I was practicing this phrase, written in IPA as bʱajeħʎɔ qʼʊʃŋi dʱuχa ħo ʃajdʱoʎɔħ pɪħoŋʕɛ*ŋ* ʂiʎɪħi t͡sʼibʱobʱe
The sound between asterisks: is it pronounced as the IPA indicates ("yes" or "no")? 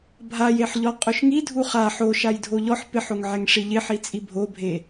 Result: yes